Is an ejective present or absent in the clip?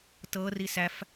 absent